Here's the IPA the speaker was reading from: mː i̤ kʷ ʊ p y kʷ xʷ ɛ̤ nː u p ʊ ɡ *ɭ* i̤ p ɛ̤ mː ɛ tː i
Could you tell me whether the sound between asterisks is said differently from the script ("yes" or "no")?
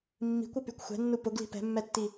yes